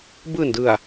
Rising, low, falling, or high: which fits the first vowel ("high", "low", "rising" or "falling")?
low